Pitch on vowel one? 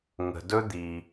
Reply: low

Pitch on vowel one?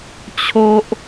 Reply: low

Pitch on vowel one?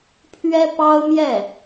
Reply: high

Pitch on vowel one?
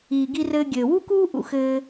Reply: low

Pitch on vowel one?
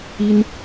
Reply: high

